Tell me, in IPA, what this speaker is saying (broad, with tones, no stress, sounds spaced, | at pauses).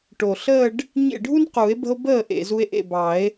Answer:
ʈ o˨˩ ɬ əː˥˧ ɖ | ɲ ḛ˥˩ ɖʱ u˥ n q u˨˩˦ e̯ b ə̤˥ o̯ b əː˥˩ ʔ ḛ˨˩ z u˧ e̯ ʔ ḛ˥˩ b ɑ˨˩˦ e̯